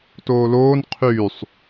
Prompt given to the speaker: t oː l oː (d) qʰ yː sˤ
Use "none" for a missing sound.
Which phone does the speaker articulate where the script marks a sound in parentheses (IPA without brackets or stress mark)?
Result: n